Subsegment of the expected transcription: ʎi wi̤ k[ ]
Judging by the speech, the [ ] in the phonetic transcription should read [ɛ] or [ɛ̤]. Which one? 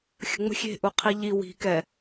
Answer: ɛ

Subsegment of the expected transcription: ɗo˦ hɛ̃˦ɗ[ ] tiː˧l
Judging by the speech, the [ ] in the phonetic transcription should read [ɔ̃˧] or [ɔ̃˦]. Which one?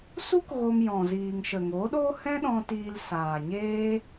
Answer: ɔ̃˧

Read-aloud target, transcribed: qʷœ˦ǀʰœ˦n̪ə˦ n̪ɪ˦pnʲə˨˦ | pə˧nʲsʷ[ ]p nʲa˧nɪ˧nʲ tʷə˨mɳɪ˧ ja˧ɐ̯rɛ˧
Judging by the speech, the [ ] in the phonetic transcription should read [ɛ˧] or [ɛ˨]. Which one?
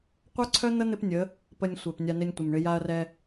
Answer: ɛ˨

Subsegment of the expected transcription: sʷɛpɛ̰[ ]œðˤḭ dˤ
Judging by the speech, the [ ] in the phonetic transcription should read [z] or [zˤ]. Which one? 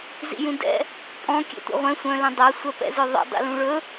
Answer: z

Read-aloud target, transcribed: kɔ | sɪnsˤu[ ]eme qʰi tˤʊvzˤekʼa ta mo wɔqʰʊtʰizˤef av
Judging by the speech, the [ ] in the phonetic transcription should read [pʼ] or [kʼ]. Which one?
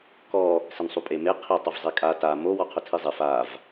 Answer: pʼ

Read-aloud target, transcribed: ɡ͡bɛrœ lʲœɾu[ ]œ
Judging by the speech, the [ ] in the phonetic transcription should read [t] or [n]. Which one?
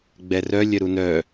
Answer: n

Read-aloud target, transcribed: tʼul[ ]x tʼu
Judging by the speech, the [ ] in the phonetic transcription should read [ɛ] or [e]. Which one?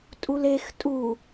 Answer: e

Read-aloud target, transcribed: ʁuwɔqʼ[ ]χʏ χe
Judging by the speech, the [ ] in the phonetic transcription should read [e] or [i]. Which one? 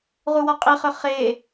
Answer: i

